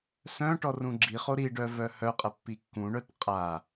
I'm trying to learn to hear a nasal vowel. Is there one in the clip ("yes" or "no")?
yes